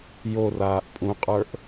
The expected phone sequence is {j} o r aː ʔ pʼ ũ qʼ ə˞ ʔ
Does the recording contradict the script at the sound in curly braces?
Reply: no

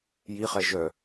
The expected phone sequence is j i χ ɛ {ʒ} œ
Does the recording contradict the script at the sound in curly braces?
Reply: no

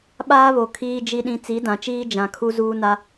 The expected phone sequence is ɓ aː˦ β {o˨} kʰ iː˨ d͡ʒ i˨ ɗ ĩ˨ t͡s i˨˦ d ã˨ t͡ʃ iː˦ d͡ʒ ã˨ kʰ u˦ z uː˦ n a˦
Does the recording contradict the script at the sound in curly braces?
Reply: no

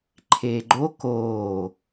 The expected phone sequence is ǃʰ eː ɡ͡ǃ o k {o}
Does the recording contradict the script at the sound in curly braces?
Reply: yes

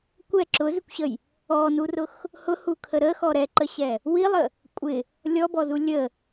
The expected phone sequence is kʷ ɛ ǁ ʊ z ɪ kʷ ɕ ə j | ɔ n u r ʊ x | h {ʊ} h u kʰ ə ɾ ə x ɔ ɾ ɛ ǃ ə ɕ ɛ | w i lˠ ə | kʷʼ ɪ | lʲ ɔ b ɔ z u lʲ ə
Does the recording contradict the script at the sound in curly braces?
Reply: no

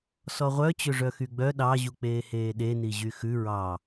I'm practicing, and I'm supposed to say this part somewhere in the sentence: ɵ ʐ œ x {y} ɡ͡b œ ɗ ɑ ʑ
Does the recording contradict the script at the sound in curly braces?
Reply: no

